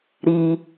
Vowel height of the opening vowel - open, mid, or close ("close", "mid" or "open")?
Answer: close